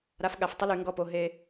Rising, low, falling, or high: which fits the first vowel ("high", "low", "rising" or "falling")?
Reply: rising